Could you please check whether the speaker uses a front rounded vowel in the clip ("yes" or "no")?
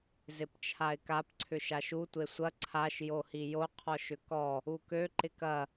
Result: yes